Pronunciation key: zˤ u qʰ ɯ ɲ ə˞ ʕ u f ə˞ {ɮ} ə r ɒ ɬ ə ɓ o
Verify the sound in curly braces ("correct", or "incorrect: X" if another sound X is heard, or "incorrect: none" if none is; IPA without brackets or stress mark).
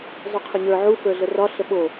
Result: correct